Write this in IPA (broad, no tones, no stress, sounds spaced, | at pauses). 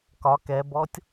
k ɒ k ɛ b ɔ tʲ